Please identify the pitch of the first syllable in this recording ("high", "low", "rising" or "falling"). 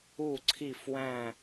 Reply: falling